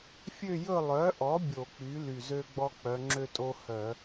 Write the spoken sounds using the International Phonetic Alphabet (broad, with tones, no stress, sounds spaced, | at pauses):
fʲ ø˦˨ j ɵ˦˨ lˠ œ˩˥ ʔ ɔ˩˥ bʲ o˧˩˧ k͡p y˩˥ l y˨˩ z ø˦ ɡ͡b ɔ˦ k͡p œ˩˧ ŋ͡ǁ ø˦ tʼ o˦ h œ˧˩˧